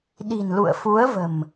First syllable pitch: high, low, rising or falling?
low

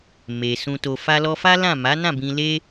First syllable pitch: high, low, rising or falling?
low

